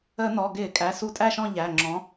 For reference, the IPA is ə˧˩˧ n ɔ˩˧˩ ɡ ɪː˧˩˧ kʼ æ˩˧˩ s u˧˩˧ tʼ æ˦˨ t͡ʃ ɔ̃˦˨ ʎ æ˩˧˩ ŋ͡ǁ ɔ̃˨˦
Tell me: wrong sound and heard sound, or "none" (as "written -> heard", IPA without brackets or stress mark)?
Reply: t͡ʃ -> ʃ